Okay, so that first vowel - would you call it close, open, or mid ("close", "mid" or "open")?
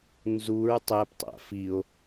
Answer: close